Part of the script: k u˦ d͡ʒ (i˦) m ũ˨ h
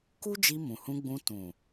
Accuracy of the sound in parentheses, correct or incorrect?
incorrect